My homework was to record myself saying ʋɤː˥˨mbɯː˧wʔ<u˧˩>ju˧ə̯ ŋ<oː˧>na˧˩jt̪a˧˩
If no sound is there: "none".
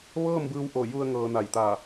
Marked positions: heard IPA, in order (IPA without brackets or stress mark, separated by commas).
o˧˩, ɤː˧